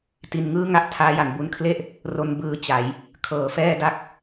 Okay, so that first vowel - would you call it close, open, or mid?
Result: close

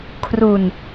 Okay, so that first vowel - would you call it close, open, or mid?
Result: close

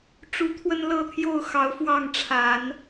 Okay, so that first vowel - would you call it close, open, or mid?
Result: close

